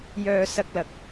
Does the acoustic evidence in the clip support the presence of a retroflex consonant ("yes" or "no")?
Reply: no